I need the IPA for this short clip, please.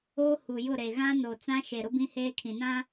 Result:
oː˦ h u˨ j ʊ˦˨ ɾ e˨ ɣ ã˦ n oː˨ t͡s ã˦ ʃ e˨ ɾ ʊ˦ b ĩ˦ h eː˦ kʰ ĩ˨ n ã˦

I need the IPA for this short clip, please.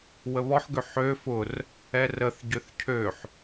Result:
w ə β ɔ ħ ɡ ø ħ ø f ʊ r | ɛ r ə θ ɟ ʏ θ cʰ ø ħ

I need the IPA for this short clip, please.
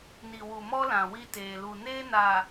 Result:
n i˨ w u˨ m ɔ˦ l ã˨ w i˦ t eː˨ l u˨ n eː˦ n aː˨

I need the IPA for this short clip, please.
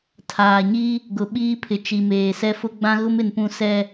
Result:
tʰ aː˨ ɲ i˦ | ɡ ʊ˨ ɓ iː˦ pʰ ɪ˨ t͡ʃ i˨ m eː˨ s ɛ˦ f ʊ˦ ɡ͡b ã˦ ɣ ʊ˦ m ɪ˨ n p ũ˨ s ɛ˨

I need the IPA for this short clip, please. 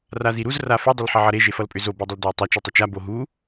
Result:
r a z i ɾ u z r a f ʏ dˤ ʏ l ħ ʌ ʕ ʌ ɾ e ʒ e f ʌ l pʼ ʏ z o b e dˤ ə l d ʌ ɪ̯ tˤ ʌ t͡ʃ u tˤ ə t͡ʃ a b o ɦ u

